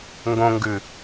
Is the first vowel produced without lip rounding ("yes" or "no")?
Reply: no